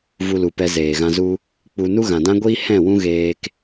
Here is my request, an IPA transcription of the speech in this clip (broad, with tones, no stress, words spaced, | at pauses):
vu˧lu˨ pɛ˧zeː˨ɣã˧zu˧ | k͡pu˧ nu˦ɣã˨dã˦ɡʷiː˦ hɛ̃˦˨wũ˦ɣeː˧k